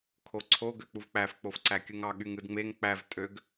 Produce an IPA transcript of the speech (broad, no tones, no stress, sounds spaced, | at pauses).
kʰ o ǀʰ o ɡ ø k͡p u v k͡p æ f k͡p o f ǀ æ kʲ ɯ ŋ ɑ ɠ y ŋ ɯ d ŋ͡m e ŋ k͡p æ v tʼ ø ɡ